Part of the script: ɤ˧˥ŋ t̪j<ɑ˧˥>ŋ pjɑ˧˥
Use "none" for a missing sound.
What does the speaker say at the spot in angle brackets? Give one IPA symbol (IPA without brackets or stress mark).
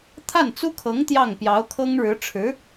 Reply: ɑ˥˩